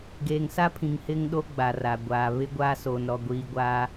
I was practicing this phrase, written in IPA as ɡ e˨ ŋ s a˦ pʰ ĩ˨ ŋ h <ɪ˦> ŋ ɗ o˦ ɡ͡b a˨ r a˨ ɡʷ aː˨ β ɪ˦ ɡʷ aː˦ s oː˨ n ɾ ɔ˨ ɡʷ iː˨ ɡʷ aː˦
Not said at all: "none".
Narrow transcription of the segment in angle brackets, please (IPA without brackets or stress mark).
ɪ˦